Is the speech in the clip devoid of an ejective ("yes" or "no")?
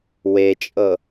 no